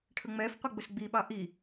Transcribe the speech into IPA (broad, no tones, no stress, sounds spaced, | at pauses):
ʈʰ ə ŋ͡m ɛ f qʷ ɪ ɡ͡b ʊ s ɡ͡b i ɓ ɑ ʔ i